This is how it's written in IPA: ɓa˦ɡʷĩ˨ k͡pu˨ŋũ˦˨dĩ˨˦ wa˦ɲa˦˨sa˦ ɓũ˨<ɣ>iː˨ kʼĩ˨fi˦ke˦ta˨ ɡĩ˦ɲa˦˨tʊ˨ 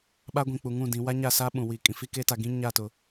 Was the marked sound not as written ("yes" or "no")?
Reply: yes